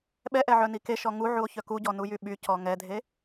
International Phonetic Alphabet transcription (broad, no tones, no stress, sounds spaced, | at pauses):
ɓ ɛ ʔ ɛ ʕ œ n i k e ʃ ɔ ŋ u ʕ u o̯ ç œ k u ɟ ɔ n u j y ɓ y c ɔ ŋ ɛ dʱ e